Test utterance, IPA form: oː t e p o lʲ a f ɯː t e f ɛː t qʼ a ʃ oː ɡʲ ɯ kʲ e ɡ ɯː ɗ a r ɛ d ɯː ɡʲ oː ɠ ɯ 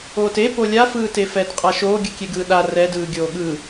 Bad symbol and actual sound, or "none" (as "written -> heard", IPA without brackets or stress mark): none